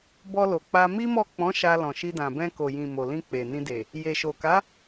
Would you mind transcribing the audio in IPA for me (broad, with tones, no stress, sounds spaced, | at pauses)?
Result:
b ɔ˧ l o˨ k͡p a˧ m i˦ m ɔ˦˨ k͡p ɔ̃˨˦ ʃ a˧ l ɔ̃˨ ʃ i˧ d ã˨ b ɛ̃˧ k o˨ j ĩ˨ m o˨ l ĩ˧ k͡p e˨ n ĩ˧ d e˨ | j e˨ ʃ o˨ k a˨˦